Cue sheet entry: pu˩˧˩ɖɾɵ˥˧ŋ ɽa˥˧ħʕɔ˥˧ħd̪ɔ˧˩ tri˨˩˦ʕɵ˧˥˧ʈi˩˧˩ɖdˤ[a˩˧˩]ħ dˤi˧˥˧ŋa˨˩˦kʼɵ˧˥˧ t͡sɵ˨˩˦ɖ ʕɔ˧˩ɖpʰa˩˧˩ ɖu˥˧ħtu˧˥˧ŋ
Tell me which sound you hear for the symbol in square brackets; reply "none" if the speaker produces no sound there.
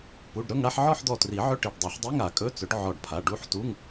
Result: a˨˩˦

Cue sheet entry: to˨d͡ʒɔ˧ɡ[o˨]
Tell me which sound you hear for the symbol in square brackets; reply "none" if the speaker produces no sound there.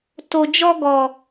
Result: ɔ˨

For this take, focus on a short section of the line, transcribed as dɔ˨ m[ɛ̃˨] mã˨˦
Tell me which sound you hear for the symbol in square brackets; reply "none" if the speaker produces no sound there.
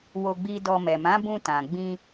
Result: ɛ˨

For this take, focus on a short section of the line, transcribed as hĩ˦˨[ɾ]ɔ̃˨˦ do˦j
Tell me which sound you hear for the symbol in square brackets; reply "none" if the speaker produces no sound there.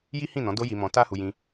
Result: n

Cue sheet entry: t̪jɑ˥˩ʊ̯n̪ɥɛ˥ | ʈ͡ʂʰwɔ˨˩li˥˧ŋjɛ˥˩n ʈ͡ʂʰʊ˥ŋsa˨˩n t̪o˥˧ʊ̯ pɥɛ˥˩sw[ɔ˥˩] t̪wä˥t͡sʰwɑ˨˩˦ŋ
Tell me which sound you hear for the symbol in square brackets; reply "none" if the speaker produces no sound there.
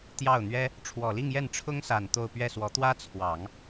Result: ɔ˧˥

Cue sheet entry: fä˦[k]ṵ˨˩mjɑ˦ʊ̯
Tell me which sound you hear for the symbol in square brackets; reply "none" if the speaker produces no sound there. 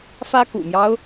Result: k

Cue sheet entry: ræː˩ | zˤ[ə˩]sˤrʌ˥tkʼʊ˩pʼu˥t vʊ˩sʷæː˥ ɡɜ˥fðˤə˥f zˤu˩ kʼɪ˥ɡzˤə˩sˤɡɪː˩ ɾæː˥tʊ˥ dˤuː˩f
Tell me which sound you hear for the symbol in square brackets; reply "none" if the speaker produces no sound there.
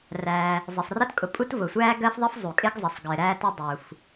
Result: ɪ˩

